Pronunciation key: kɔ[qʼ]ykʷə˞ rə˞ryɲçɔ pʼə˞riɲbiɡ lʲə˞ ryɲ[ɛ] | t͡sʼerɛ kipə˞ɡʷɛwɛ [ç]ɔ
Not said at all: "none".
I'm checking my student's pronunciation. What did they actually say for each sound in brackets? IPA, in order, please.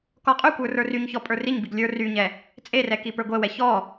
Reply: qʼ, ɛ, ç

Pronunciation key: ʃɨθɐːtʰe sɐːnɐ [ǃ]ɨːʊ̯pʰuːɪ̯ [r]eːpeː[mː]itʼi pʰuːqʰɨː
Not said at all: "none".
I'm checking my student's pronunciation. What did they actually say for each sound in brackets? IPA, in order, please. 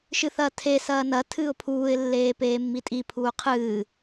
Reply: tʰ, lː, mː

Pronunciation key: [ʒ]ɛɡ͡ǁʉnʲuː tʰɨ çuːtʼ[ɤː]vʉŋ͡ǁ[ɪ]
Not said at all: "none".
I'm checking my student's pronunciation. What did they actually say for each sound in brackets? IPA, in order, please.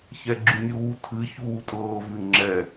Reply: ç, ɤː, ɛ

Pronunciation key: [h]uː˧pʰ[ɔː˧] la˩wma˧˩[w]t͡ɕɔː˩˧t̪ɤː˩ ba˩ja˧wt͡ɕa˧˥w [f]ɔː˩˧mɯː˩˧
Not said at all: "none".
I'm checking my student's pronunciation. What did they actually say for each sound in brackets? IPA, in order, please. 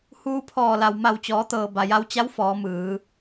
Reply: h, ɔː˧˩, w, f

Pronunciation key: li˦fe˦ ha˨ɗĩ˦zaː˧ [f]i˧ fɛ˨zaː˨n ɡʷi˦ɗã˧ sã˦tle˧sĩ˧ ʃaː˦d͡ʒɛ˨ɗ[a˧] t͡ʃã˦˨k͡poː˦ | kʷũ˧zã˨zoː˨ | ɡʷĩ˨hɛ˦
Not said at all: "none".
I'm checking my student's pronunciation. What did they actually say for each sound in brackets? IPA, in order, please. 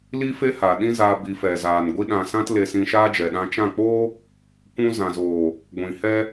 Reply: b, ã˧

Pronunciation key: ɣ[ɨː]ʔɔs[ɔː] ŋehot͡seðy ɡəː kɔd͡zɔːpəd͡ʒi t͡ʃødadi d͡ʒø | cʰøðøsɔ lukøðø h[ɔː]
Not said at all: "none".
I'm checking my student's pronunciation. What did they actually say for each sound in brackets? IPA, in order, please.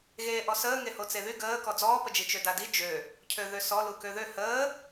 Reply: eː, əː, əː

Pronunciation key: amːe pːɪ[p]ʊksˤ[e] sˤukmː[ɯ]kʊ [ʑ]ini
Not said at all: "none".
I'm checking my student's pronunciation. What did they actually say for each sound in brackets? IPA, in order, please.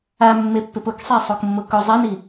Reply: p, e, ʊ, zˤ

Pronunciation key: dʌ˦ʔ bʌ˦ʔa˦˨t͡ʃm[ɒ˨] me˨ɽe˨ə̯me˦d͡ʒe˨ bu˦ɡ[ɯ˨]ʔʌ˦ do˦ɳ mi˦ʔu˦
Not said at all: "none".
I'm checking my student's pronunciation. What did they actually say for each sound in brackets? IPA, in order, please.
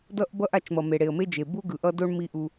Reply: ʌ˨, ɯ˨

